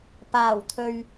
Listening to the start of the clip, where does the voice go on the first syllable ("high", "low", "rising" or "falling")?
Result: low